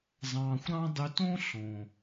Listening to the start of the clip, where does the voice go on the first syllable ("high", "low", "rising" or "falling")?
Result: low